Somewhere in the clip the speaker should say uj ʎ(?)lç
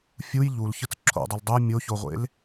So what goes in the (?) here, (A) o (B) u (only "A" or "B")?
B